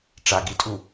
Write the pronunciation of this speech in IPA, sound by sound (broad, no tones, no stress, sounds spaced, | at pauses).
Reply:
ʈ͡ʂ a ɡ i tʼ u